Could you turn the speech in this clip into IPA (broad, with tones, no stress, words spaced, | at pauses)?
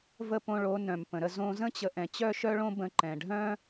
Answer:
və˥˩põ˧ɭo˩˥ nœ̃˩mpə̃˩ɾə˧ zõ˧zə̃˥t͡ɕə˩˥ ʔɛ̃˩t͡ɕœ˥ʃœ˥ɭõ˥ bə̃˧ǃɛ̃˩ɖʱœ̃˥